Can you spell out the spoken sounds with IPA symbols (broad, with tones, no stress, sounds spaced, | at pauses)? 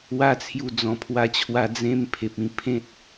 w a˦ t͡sʰ j u˧ d͡z ɔ̃˨˩ pʰ w a˧ t͡ɕʰ w a˧ d͡z ẽ˧ m pʰ e˨ p̚ ĩ˧ pʰ ẽ˦ t̚